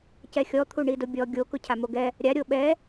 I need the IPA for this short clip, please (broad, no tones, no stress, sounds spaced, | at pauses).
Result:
c ɛ xʲ ɔ t̪ʰ u ɳ i d ʊ bʲ ɔ ɡʲ o k ʊ cʰ a m o ɡ ɛ | ɾʲ a ɾʲ o ɓ ɛ